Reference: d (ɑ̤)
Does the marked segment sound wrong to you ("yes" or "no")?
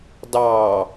yes